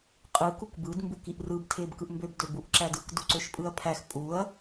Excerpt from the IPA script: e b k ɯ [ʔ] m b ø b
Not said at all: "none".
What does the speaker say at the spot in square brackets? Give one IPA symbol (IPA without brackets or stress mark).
ʔ